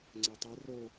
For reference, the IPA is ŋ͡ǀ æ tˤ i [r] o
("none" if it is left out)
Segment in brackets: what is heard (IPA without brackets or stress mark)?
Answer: r